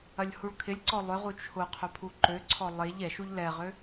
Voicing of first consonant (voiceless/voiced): voiced